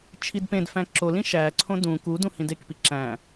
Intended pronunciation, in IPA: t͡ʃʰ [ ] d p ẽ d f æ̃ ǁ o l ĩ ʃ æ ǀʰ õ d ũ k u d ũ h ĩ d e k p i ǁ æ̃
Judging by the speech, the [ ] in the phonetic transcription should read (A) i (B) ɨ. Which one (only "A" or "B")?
A